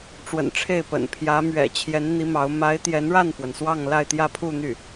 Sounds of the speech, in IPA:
ʈ͡ʂ w ə̰˨˩ n ʈ͡ʂʰ e˥˩ ɪ̯ p ə̰˨˩ n pʰ j ä˧˥ m ɥ ɛ̰˨˩ t͡ɕʰ j ɛ˧˥ n n̪ i˧˥ m ɑ˧˥ ʊ̯ m a˧˥ ɪ̯ t̪ j ɛ˧˥ n ɻ a˥˩ n f w ə˩ n s w ɑ˥˧ ŋ l a˥˧ ɪ̯ t̪ j ä˥˧ pʰ u˥˧ n̪ y˥˩

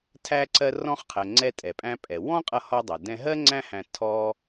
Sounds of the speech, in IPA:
tʰ æ˧ ǀ ɜ˧ r ɔ̃˧ χ qʰ ɜ˩ ŋ͡ǀ ɛ˧ tʼ ɛ˩ pʼ æ̃˧ pʼ ɛ˩ w ɔ̃˥ qʼ ʌ˧ h ɔ˧ dˤ ʌ˩ d ɛ̃˧ ɦ ɜ˥ ŋ͡ǀ æ̃˥ h æ̃˧ tʰ ɔ˧

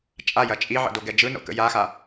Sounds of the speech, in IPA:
t͡ʃʼ a j ɐ t͡ʃʼ i ʕ ə̰ d o ɡ ɛ d͡ʒ ɯ n o̰ k ə̰ j a x a

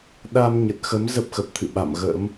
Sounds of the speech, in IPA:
ɗ a˧ m ɲ ə˨˩ t̚ x ə˨˦ m z ə˦˥ p̚ x ə˨˩ p̚ t̪ʰ ɨ̰˧˨ ɓ a̰˧˨ m ɣ ə̰ː˧˥ m

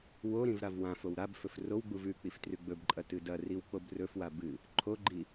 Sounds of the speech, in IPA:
w o ɾ ĩ v ɾ a v w ã f o w ɾ a b f ɵ f r o w ɡ͡b u v ʉ k͡p i f t r ʉ ɡ͡b ɵ b ǃʼ ɐ t ɨ d ɐ r i w k͡p o b r ɵ f w a b ɨ | ǃʰ o ɡ͡ǃ i

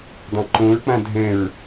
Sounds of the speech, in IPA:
dˤ ã ǃ õ ɹ k͡p ã dʱ ɛ̃ ɹ

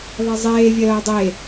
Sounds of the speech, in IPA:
ðˤ ɛ zˤ eː vʲ ɜː dˤ e

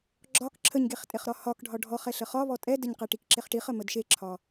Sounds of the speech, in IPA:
ɡ͡ǁ ɒ k ǁʰ ə ɲ ɡ e χ tʼ e χ ɾ ɒ h ɒ k ɖʱ ɒ ɖʱ ɔ χ ɛ ɬ ə χ ɒ β ɔ tʼ ɛ d ə ɲ q ɛ ʈ i k ǁ e χ ʈ i χ ə m ə d ʃ e ǁʰ ɒ

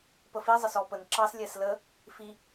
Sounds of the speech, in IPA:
p ə f i zˤ ə s ɔ p ə n ǁ ɑ s lʲ ɛ s l ə | f i

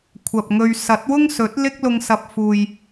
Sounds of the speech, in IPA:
kʷʰ ɐ˨ p̚ ŋ ɵ˧ ɥ s ɐ˨˥ t̚ w ʊ˥ ŋ s ɵ˨˥ t̚ l ɪ˥ k̚ l ʊ˧ ŋ s ɐ˨ p̚ f uː˨ j

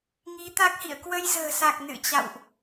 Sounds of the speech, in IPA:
ŋ i˨˦ t̪ a˦˥ k̚ h ḭ˧˨ ə̯ k w ə˧ j z ə̤ː˨˩ s a˨˩ k̚ n ɨ̰˧˨ t͡ɕ a̰˧˨ w ʔ

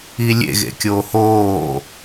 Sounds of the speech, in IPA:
i lʲ ḛ ɣ ḛ kʲ oː h oː

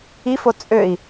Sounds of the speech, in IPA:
i f o t͡sʼ ø i̯

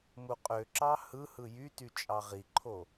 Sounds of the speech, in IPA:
m u qʼ ø ǁ ɑ h ɯ h ɯ j y t y t͡ʃʼ ɑ ʁ i ǃʰ o

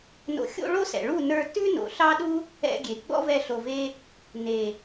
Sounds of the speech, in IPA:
n o̰˧ xʲ o̰˦ ɭ o˦ s ɛ̰˨ ɭ u˦˨ n ə˞˧ t ʉ˦ n o̰˨ ɬ ɑ˦ ɗ u˦ | ɛ̰˧ ɡʲ e˨ ɡ͡b ɔ̰˦ v ɛ˧ ɬ o˧ v e˦ | n e˨

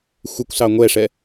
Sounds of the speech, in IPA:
xʷ ɪ kʷ s ɑ ŋʷ ɛ ʂ ɛ

